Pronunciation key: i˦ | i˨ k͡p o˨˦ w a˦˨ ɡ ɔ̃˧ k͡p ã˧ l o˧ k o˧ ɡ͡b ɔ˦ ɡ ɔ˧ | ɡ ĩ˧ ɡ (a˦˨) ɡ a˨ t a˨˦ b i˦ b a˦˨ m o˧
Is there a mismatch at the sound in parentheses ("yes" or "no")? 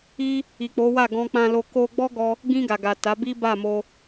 yes